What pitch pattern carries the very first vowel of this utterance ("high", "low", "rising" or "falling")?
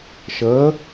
rising